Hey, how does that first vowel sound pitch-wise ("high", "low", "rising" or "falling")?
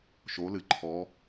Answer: rising